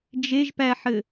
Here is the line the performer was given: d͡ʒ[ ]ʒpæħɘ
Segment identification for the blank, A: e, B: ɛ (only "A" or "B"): A